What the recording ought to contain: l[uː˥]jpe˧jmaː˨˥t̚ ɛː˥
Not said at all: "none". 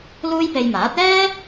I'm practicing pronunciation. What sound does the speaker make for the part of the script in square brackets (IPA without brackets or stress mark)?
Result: uː˥